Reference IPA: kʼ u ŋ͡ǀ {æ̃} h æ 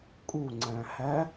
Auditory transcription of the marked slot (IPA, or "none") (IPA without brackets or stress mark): æ̃